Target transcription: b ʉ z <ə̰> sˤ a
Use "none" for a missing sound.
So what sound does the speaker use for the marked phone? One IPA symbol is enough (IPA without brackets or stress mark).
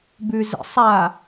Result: ə̰